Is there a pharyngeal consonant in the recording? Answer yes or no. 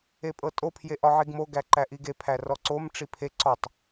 yes